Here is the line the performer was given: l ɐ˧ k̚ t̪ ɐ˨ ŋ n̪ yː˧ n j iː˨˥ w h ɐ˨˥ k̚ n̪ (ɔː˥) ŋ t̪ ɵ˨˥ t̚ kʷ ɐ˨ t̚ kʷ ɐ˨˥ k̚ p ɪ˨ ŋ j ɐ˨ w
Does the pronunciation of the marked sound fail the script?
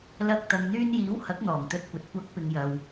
yes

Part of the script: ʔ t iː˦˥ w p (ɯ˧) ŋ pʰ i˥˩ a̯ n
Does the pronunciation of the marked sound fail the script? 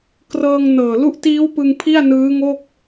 no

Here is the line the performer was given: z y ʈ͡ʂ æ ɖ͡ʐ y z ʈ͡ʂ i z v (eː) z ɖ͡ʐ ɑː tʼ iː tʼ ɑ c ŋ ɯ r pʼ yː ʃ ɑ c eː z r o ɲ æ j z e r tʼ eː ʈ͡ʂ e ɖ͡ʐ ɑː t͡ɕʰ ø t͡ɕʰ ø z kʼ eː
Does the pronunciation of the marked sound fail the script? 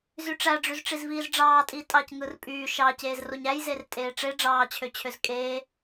yes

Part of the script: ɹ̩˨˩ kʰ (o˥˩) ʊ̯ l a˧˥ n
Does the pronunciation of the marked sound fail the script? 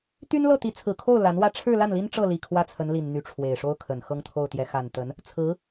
no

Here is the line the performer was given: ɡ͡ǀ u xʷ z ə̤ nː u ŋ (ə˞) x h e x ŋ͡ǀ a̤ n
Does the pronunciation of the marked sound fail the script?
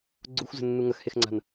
yes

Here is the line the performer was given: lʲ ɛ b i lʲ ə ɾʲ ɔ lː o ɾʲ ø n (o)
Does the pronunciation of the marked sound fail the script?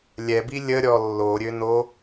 no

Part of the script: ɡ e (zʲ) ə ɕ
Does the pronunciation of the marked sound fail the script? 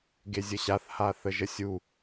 no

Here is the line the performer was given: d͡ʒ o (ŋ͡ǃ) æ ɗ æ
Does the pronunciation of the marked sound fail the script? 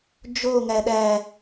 yes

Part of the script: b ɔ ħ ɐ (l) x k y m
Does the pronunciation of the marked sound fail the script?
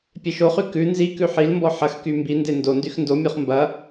yes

